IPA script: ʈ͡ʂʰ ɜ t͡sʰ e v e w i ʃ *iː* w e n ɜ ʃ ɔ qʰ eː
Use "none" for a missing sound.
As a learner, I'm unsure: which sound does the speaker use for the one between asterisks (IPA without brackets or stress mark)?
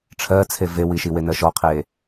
i